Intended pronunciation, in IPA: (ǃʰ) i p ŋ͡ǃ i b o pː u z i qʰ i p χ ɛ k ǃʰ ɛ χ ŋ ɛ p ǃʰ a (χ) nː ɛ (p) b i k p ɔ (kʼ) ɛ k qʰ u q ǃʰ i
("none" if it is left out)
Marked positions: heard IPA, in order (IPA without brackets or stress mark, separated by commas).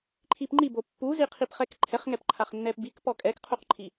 ǃʰ, χ, p, kʼ